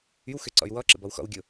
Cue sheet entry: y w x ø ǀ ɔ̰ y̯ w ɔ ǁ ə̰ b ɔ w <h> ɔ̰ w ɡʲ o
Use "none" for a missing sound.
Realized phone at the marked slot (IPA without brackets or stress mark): x